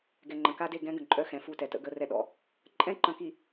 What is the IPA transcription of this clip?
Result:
ɡ ɛ˨ ŋ͡ǃ ə̃˨ k a˦ d e˦˨ ɡ ɛ̃˦ ɡ ə̃˨ ǃʼ œ˦ x ɛ̃˨ f u˦˨ t ɛ˨ t ə̰˦ ɡ ə˦ r ɛ˦ ɗ ɔ̰˦ | ǃʼ ɛ̃˦ ǃ ə̃˨ k i˨

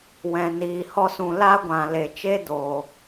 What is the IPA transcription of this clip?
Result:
w ɛ̃˨ n iː˨ h ɔ˧ s ũ˨ l a˦ ɡʷ ã˨ l e˨ t͡ʃ e˦ d oː˨

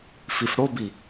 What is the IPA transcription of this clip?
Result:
f i f ɽ o b i

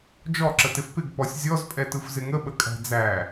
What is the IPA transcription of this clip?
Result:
d͡ʒ ɔ ǁ ə t ɪ f p ɪ ɡ p ɔ sʲ zʲ ɔ z pʼ ɛ t ɯ f z ɪ ŋ ə ɓ ə kʼ æ̤ d͡z æ

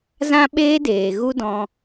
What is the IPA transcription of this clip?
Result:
z ã˦ ɓ eː˦ d eː˨ ɣ u˦ d ɔ̃˧

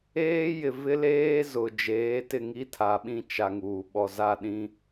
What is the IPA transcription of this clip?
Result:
eː˦ j ɪ˨ v ɪ˦ l eː˦ z ʊ˨ d͡ʒ eː˨˦ t ɪ˦˨ ŋ i˦ tʰ a˨ ɓ ĩ˦ t͡ʃ a˨ ŋ uː˨ ɓ ɔ˨ z a˦˨ ɗ ĩ˦

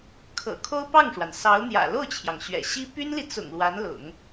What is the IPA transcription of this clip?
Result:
kʰ ɤ̰˨˩ kʰ o˥ ʊ̯ p ɑ˥˩ ŋ ʂ w a˩ n s ɑ˧˥ ʊ̯ n̪ j ä̰˨˩ l o˥˩ ʊ̯ t͡ɕʰ j ɑ˩ ŋ ɕ ɥ ɛ̰˨˩ ɕ i˥ p y˥ n l i˨ t͡s ʊ̰˨˩ ŋ l w a˧˥ n l ʊ̰˨˩˦ ŋ

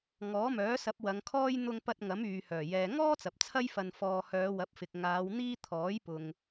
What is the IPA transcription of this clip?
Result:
ŋ ɔː˨˥ m œː˨˥ s ɐ˨˥ p̚ w ɐ˨˧ ŋ kʰ ɔː˥ j n̪ ʊ˧ ŋ p ɐ˧ t̚ ŋ ɐ˨˥ m yː˨ h œː˨˩ j ɛː˨ ŋ ɔː˥ t͡s ɐ˨ p̚ t͡sʰ ɐ˥ j f ɐ˧ n f ɔː˧ h œː˨˧ w ɐ˨˥ p̚ f ɪ˨ k̚ ŋ aː˨˧ w n̪ iː˥ t̪ʰ ɔː˨˥ j p ʊ˨ ŋ

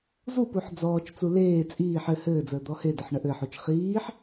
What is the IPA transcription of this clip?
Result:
z u p u ħ d͡z ɔː t͡ʃ t͡s u l eː t͡sʼ iː ħ ɘ h ɘː d͡z əː d̪ ɔ h e d ə ħ ɳ ə ʔ ɘ ħ u t͡ʃ χ iː ħ

